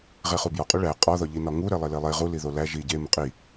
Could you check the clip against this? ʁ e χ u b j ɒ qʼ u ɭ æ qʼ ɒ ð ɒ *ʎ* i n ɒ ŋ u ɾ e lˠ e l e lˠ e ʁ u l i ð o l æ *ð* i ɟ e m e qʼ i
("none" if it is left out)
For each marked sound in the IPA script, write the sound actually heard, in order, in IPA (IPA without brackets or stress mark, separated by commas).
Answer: ʎ, ʒ